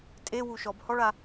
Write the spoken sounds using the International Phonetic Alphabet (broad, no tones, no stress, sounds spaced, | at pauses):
tʼ e w u ʃ ɔ b h ɔ ɭ a